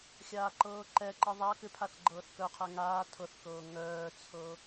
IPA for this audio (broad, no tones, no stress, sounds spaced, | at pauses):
xʲ aː ǃ ɤː ǃ ɛ ǃ i ðˤ a k ʏ pʰ a θ ɡ͡ǃ ɤː θ k œ qʰ ɛ ŋ aː tʰ ɤ θ k ɤː ŋ œː t͡sʰ ɤ